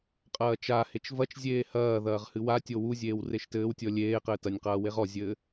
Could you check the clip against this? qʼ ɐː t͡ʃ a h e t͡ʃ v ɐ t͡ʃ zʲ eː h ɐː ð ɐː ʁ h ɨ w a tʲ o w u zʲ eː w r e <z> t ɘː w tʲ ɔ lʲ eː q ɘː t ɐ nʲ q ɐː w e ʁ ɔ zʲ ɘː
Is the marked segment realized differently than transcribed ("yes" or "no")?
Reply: yes